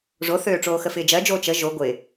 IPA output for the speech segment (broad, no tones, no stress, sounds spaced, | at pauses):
ʐ o θ øː ʈ͡ʂ oː x ə f ɪː d͡ʒ ɜ d͡ʒ oː t͡ʃ ə ʒ o ɡʷ ɪ